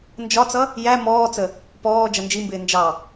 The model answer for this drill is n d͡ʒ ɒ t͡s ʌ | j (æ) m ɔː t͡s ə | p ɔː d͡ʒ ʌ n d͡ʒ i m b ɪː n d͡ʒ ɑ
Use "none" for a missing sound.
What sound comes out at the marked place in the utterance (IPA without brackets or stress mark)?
æ